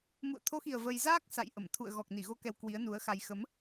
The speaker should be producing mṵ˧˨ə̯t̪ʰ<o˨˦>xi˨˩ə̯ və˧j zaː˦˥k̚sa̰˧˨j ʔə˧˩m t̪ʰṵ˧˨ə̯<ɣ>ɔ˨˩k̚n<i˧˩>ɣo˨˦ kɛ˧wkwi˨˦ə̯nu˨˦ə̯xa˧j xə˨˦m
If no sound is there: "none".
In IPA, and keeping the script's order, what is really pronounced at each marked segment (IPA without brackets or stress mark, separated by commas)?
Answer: o˨˦, ɣ, i˧˩